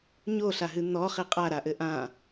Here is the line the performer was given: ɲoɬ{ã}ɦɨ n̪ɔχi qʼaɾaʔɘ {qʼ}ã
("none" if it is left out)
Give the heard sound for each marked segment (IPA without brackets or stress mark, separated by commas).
a, ʔ